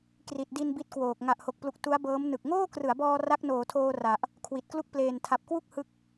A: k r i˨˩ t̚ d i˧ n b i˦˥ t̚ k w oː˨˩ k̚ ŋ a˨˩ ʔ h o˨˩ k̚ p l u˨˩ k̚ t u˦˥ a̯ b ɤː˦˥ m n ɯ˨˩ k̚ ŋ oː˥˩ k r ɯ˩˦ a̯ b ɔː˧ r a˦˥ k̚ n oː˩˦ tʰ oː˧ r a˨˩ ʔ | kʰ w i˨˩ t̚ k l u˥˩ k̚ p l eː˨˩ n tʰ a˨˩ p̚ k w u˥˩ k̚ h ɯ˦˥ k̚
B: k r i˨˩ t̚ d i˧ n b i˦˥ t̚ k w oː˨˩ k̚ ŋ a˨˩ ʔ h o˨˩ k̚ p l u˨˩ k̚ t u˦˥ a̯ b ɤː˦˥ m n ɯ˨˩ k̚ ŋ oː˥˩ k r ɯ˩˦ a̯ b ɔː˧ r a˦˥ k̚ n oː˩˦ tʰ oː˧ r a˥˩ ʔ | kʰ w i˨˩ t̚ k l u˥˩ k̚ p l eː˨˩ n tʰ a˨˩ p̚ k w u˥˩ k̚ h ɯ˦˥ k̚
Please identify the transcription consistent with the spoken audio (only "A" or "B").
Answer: A